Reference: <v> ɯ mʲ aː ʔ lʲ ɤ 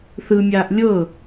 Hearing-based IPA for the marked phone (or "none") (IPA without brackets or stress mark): θ